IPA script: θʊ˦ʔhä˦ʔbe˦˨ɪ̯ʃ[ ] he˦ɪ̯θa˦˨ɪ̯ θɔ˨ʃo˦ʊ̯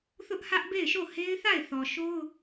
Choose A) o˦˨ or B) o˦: A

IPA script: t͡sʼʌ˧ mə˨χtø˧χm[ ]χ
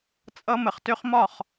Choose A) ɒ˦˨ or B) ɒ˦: A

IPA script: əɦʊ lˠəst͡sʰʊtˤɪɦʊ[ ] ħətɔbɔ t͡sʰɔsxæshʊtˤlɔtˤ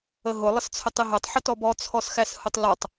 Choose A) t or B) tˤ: B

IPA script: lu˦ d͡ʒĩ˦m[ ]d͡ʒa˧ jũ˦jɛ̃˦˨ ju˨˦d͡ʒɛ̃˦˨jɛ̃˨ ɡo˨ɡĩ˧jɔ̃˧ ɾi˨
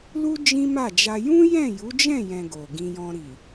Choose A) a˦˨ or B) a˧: A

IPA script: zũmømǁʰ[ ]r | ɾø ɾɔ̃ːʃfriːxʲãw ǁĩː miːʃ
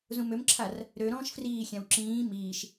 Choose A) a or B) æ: A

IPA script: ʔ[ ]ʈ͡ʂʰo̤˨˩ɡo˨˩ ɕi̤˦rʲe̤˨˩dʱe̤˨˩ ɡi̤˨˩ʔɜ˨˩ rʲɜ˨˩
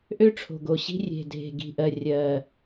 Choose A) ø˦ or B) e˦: A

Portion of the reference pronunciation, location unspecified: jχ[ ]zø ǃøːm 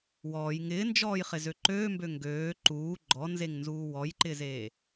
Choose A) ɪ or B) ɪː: A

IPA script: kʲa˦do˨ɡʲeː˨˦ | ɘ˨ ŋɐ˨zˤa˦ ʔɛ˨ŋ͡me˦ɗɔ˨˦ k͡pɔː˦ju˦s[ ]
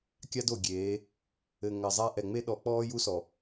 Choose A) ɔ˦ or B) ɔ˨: B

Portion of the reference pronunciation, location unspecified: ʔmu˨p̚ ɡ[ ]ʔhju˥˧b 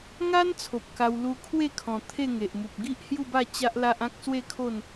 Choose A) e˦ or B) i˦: B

